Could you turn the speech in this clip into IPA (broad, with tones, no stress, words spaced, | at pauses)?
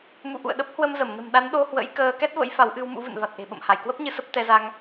mṵ˧˨ʔṵ˧˨ə̯ ɗə˦˥p̚hwə˧mzə˧˩m nə̤˨˩mɗa˨˦nɗo˧hwə̰˧˥j kəː˧ kɛ˦˥t̚və̰˧˥j fa˨˦w ʔɨ˧w mṵ˧˥vɨ̰˧˨n va˨˩t̚ʔe̤˨˩ɓə̰˧˨m ha˧˩jkwə˦˥p̚ɲɨ˧ sə˦˥p̚t̪ɛ˧za˧ŋ